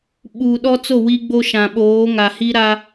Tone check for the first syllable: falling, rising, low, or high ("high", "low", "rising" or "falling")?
low